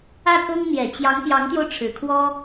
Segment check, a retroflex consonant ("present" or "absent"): present